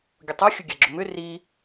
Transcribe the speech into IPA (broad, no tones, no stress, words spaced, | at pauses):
ɡʲʊtˤo xʲʊɡʲaɡ͡ǁʊmʏ ri